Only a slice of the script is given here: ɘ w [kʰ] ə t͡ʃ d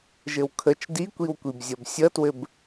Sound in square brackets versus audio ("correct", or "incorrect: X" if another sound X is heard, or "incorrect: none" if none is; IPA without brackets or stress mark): correct